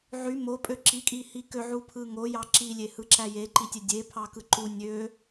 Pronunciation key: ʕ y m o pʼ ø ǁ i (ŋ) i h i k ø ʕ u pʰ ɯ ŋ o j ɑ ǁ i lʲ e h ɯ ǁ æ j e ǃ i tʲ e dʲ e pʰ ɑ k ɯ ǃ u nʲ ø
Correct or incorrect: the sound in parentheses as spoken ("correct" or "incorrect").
incorrect